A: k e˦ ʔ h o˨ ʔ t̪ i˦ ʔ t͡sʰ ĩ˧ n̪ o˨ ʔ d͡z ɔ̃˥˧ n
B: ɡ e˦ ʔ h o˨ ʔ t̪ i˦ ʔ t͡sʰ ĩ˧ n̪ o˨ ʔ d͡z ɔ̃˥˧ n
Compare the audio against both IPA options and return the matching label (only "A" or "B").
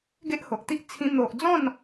B